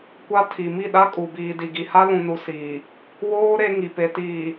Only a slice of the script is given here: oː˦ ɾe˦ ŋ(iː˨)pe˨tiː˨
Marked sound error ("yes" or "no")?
yes